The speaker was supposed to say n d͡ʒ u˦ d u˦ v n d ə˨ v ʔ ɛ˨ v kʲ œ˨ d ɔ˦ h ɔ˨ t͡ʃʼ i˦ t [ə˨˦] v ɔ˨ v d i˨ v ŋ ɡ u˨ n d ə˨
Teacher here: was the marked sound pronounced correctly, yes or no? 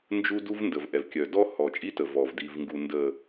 no